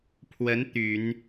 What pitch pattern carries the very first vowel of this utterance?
rising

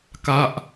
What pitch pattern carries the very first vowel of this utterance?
falling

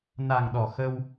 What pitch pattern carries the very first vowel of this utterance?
low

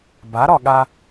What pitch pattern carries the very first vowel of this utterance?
rising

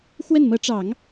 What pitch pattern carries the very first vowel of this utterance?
falling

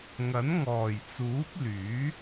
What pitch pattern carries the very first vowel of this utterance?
rising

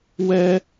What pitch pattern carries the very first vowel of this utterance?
high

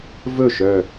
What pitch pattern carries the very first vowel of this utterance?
falling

